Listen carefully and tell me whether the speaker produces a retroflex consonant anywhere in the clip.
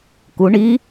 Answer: yes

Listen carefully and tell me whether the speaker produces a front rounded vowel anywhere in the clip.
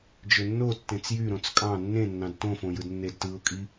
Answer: yes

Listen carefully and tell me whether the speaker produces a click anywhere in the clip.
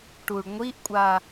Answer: no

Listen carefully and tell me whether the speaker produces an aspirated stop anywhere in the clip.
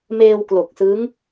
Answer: no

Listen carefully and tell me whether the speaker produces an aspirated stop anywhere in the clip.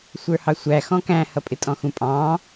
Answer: no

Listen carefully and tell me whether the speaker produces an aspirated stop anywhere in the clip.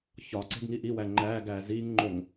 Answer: no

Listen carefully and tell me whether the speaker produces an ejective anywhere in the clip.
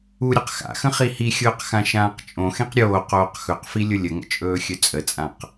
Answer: yes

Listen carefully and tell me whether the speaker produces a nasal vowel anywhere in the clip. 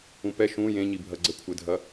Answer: yes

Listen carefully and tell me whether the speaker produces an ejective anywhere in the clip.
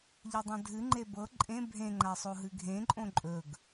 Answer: yes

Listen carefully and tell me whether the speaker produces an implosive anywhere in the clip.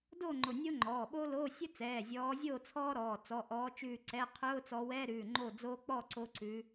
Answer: yes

